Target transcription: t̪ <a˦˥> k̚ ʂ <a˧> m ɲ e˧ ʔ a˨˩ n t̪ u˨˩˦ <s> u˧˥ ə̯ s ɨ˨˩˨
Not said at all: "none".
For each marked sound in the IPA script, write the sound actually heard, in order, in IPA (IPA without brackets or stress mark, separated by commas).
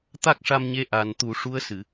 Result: a˦˥, a˧, ʂ